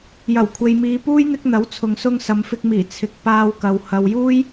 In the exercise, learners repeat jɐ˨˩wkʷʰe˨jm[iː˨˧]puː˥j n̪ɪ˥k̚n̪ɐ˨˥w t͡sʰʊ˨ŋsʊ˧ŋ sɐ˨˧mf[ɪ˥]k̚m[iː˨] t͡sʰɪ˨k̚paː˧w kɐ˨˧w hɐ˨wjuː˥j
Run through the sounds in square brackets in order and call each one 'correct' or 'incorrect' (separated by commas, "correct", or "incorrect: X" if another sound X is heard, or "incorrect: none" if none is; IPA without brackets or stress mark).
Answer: correct, incorrect: ɪ˧, incorrect: iː˨˩